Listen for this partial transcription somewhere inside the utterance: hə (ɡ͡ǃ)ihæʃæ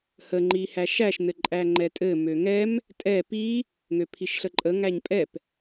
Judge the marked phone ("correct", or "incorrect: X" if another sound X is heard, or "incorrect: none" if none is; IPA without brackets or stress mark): incorrect: ŋ͡ǃ